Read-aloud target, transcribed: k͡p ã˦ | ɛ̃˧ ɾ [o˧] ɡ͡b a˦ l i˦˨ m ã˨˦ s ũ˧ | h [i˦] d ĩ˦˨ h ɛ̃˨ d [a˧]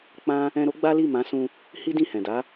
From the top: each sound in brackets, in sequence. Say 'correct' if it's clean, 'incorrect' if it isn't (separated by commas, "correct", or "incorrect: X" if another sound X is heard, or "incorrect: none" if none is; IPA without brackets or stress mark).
incorrect: o˦, correct, incorrect: a˨˦